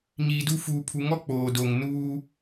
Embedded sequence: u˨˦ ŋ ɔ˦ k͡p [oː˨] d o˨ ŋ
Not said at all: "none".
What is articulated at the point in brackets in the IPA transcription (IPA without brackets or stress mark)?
oː˨